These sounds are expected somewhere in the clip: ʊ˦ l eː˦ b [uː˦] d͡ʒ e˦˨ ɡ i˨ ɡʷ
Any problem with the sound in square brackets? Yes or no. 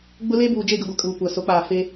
yes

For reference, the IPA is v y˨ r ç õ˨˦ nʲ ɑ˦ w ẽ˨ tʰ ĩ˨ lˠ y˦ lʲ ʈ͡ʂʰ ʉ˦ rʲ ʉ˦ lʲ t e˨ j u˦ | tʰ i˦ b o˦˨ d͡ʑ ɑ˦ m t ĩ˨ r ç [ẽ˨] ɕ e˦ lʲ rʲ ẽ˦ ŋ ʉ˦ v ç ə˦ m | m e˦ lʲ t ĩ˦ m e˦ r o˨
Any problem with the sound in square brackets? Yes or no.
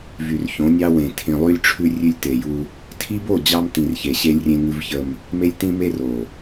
yes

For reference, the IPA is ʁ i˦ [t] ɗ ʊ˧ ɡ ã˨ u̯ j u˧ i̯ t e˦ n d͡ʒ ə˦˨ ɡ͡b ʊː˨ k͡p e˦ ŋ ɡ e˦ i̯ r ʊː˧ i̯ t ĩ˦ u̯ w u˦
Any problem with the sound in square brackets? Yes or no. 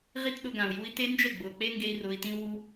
no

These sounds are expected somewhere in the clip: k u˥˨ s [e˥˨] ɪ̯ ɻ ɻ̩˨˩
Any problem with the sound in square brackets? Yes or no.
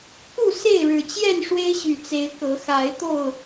no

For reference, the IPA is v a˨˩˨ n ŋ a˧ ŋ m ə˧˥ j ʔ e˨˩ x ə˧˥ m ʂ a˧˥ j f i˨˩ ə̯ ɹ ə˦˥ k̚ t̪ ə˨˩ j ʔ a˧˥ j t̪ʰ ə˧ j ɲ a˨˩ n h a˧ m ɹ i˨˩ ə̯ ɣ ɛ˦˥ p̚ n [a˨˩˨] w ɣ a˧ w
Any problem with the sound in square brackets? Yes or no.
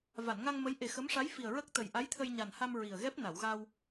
no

